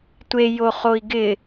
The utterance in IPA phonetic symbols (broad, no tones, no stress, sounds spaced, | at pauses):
tʷ e j o χ o i̯ ɡ ɪ